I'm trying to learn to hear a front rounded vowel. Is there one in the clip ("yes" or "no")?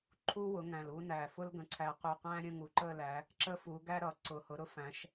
no